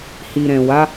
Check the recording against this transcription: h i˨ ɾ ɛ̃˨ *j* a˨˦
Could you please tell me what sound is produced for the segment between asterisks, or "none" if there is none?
w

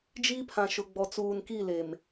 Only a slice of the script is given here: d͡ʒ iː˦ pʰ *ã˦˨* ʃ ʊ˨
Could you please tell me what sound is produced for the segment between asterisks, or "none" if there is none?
ã˨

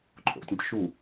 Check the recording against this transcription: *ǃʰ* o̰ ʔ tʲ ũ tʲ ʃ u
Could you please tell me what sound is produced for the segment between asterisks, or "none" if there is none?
ǃʰ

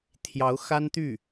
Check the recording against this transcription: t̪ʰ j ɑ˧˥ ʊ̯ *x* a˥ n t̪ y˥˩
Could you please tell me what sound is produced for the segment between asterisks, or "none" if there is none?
x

